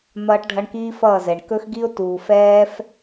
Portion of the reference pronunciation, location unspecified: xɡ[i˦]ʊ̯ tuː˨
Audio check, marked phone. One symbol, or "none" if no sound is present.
i˦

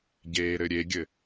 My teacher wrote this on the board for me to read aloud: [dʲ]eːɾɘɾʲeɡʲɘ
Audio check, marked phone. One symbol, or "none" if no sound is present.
ɟ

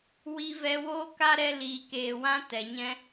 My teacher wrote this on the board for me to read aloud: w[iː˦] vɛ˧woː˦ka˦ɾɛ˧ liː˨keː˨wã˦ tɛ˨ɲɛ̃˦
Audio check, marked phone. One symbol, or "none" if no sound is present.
i˦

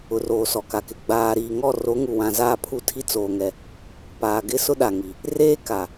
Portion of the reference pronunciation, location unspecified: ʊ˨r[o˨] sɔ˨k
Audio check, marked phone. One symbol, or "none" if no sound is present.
oː˨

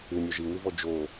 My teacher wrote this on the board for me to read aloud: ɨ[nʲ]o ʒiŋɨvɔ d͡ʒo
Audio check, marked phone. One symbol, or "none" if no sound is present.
nʲ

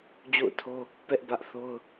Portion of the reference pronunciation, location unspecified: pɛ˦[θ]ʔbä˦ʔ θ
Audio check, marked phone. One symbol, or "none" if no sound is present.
none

